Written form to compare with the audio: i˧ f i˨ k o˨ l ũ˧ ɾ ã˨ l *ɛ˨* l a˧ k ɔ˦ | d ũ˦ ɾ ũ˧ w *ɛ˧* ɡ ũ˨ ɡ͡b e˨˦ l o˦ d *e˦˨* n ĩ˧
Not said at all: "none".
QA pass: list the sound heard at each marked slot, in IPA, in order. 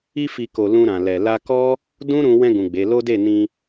ɛ˨, ɛ̃˧, e˦˨

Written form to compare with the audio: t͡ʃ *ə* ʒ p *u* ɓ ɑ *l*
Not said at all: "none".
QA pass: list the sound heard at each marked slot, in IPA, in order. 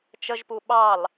ə, u, l

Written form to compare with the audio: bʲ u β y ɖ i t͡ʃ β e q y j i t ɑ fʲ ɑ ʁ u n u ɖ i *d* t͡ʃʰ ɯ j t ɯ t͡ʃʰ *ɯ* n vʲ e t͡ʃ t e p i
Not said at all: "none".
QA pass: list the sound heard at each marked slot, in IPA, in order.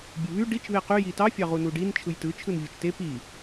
n, ɯ

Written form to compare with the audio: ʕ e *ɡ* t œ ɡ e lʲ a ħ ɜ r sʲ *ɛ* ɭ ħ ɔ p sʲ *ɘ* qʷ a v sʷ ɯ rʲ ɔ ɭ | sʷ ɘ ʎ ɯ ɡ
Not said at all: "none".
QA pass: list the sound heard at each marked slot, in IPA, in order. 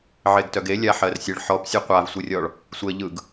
ɡ, ɘ, e

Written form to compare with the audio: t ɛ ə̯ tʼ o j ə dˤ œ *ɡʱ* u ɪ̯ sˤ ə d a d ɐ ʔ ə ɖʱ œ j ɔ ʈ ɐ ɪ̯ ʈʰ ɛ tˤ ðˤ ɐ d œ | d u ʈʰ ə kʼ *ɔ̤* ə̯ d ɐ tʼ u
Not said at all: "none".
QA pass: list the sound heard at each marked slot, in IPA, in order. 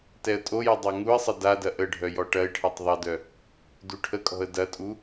ŋ, ɔ̤

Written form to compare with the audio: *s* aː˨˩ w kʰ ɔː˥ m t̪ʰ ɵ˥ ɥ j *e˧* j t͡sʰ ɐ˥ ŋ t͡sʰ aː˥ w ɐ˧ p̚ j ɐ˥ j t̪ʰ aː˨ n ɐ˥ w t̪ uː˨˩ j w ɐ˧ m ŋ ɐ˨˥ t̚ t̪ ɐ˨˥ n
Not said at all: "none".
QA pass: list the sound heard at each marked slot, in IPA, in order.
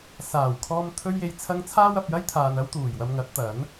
s, e˧

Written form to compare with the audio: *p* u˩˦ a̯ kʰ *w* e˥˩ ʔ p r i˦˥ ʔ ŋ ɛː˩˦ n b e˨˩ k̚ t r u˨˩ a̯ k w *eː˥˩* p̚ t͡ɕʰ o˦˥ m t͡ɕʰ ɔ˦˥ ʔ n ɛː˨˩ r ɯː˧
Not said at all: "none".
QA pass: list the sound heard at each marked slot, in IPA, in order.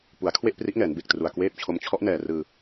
p, w, eː˥˩

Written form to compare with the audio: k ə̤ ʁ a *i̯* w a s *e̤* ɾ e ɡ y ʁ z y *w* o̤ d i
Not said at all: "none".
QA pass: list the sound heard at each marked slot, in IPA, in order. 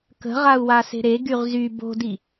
u̯, e̤, b

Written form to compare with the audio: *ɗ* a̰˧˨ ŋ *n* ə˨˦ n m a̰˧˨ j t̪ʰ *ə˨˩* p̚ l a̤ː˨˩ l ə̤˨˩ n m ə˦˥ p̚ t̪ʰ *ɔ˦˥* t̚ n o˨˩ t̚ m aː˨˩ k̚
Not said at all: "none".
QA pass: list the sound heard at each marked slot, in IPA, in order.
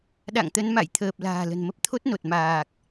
ɗ, t̪, əː˨˩, o˦˥

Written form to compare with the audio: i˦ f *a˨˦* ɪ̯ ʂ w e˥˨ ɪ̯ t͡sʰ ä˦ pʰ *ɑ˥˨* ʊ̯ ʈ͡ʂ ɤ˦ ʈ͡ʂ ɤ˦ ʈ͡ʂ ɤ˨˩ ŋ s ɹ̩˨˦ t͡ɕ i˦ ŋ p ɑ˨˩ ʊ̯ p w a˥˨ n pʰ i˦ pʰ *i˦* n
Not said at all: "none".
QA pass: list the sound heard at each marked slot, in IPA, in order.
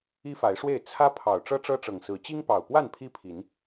a˨˦, ɑ˨˩, i˨˦

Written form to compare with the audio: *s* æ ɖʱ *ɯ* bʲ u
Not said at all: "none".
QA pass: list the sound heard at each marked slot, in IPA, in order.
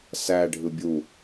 s, ɯ

